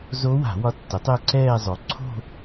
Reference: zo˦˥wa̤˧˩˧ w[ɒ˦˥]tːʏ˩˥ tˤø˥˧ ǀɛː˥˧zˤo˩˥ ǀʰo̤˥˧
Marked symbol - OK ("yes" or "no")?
yes